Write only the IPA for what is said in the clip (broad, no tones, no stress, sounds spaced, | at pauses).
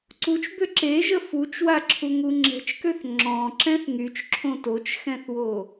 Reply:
ǀ u t͡ʃ b ø ǁ e ʒ ə f u t͡ʃ w a ǁʰ u ŋ u ŋ͡ǁ ɛ̤ t͡ʃ k ø θ ŋ͡ǁ ɔ̃ ǁ ɛ̃ θ ŋ y t͡ʃ ǁʰ õ t o t͡ʃ x ɛ̃ θ w o